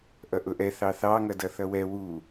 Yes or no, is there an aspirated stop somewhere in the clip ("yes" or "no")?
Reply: no